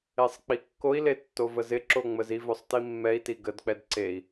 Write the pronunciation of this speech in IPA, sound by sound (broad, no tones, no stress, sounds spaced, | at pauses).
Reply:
e sˤ k͡p i kː o i̯ l e tː o v ə z ɪ ǁ o ŋ͡m ə z i v ɵ sˤ t i mː ɛ i̯ t i ɡ ə d k͡p ɛ d ǀ e i̯